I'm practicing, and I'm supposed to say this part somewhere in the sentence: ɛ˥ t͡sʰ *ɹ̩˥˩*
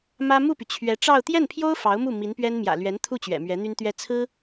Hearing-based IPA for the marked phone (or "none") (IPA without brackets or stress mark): ɹ̩˥